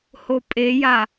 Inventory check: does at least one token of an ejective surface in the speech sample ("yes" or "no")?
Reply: yes